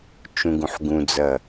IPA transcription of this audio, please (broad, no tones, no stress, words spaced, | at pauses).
t͡ʃũɡũħɡũd͡zɐ